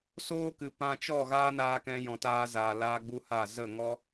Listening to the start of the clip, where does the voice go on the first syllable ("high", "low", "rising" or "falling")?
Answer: high